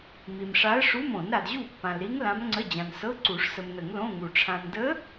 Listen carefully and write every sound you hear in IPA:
m i˨ m ʂ a˧˥ ə̯ ʂ u˧˥˧ m õ˨˩˦ n ɾ a˨ d ʑ u˥˩ pː ã˨ l ɾ i˧˥ ŋ l ã˧˥ m ŋ͡ǀ ə˧˥˧ d͡ʑ ã˨ n s ɤ˧˥˧ ǀ u˨˩˦ ʂ s ə˨ m n ə˨˩˦ ŋ l õ˧˥˧ ŋ u˨ ʈ͡ʂʰ ã˨ n d ə˧˥

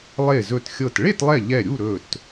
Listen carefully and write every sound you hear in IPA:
lˠ e˧˩ z ɵ˧˩ t xʲ ɤ˧˩ t ɭ e˥˨ t lˠ ɛ˧˩ ʎ ɛ˧˩ ɾʲ u˥˨ ɾ ɵ˧˩ t

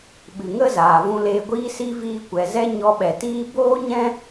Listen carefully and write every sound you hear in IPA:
ɓ ɨ˨ ŋ ə˦ z aː˨ v ũ˧ l eː˧ ɡʷ iː˦ s i˦ v iː˧ kʷ ɛ˨ z ɛ˦ ɲ ɔ˧ ɓ ɛ˨ t iː˦ b oː˦ ɲ ɛ̃˦

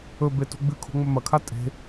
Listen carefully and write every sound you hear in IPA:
ɵ b e t ṳ ɡ͡b ɨ kʰ o̤ ŋ͡m ɵ m ɐ kʰ a tʼ e̤

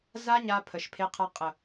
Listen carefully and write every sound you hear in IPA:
z a˦ ɲ a˧ pʰ ə˨ ʃ pʰ e˧ qʰ a˧ qʼ ə˨

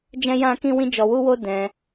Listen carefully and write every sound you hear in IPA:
d͡ʒ ɛ̃˦ j ã˦ k ĩ˦ w ĩ˦ d͡ʒ ɔ˧ w u˦ w o˦ d ɛ̃˧

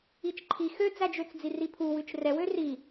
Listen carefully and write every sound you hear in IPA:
i t͡ʃ ǃʰ i x ø d͡z æ d͡ʒ ø t͡s d͡z i r i pʰ u w ʉ t͡ʃ r ɛ w ø r i

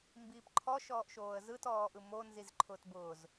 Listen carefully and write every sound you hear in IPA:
m b iː p ǃʰ ɔ ʃ ɔː ʔ ʃ oː ə̯ z ɯ t ɔː ʔ ɯ m o n z i z ǃʰ ʊː t b ʊː z

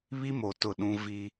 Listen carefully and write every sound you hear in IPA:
β i˦ m o˨ t ʊ˦˨ ɗ ũ˦ v i˦

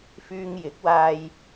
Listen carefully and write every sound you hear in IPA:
f yː˧ ŋ j ɪ˨˥ k̚ w aː˧ j

